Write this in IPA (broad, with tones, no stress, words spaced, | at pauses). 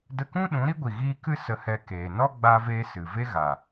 də˧kũ˦ ɗũ˨˦ɾi˦ɡʷi˨ ɣiː˧ kɨ˦ sə˧hɛ˧keː˨ nɔ˦ɡ͡ba˧veː˧ sɨ˨ ve˦ɣa˨